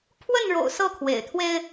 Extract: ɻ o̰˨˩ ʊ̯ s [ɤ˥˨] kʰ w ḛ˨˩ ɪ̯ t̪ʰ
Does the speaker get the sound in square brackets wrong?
no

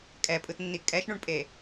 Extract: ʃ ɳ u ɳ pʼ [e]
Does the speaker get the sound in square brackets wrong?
no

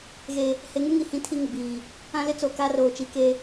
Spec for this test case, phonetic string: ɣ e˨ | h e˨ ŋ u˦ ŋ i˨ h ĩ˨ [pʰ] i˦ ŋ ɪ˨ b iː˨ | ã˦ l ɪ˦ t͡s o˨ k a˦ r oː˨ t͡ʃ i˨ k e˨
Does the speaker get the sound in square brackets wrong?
yes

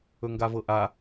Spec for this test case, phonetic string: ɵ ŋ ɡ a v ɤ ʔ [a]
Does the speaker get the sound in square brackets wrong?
no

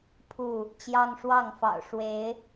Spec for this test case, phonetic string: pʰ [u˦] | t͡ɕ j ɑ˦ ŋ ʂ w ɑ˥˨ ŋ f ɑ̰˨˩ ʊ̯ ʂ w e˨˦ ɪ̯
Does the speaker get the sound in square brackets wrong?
yes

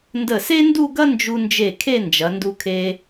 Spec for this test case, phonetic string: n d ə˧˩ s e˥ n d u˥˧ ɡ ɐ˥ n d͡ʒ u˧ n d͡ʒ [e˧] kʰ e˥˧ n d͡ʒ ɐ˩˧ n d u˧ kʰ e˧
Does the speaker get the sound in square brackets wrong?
yes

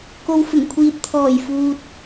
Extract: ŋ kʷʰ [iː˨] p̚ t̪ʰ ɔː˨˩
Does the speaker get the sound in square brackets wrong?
no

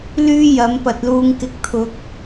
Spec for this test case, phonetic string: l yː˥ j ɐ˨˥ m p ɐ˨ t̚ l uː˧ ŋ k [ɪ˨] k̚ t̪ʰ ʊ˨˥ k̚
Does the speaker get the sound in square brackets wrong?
no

